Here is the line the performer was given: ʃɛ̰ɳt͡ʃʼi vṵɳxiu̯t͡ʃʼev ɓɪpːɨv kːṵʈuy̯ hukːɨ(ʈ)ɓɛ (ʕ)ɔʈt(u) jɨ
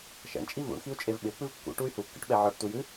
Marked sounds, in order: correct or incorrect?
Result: correct, correct, correct

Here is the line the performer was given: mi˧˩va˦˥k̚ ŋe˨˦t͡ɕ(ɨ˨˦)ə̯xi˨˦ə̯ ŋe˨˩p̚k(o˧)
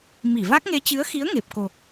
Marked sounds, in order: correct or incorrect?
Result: correct, incorrect: o˨˩

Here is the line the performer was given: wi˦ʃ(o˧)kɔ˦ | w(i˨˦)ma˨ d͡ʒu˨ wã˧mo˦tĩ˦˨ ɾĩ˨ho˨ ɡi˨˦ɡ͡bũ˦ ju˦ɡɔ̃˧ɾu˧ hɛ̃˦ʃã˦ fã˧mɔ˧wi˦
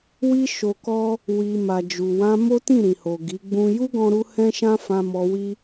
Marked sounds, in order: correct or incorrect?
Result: correct, incorrect: i˨

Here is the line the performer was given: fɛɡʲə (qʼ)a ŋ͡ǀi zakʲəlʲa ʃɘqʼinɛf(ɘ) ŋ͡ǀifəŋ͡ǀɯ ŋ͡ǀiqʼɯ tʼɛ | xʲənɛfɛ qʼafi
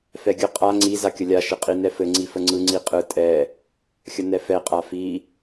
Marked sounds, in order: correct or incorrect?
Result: correct, correct

